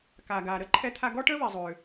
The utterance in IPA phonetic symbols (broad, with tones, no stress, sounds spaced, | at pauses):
k a˩ ɡ a˩ ɾ ə˥ ǃʰ ɛ˧ t̪ʰ a˧ ɡ ɔ˥ ʈ ə˥ β i˩ zˤ ø˩